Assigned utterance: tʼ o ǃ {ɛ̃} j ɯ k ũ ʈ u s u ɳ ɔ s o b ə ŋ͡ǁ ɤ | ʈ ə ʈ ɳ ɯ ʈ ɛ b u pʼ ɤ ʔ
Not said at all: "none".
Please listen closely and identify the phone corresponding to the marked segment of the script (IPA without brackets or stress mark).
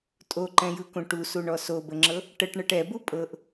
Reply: ɛ̃